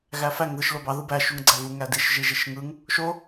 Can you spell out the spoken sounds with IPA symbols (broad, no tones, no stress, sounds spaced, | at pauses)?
ɣ æ f æ ŋ ð ɯ ʃ l o b ɑ ð ɯ b æ ʃ u ŋ ɡ͡ǀ æ v u ŋ æ d i ʃ ʒ i ʒ i ʃ ŋ ɯ ŋ | ʃ o